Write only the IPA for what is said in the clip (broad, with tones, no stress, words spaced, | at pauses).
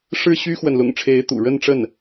ʂɻ̩˥˩ɕy˥xwə˨n lʊ̰˨˩ŋʈ͡ʂʰe˧˥ɪ̯t̪ṵ˨˩ ɻə˥˧nʈ͡ʂə˥˩n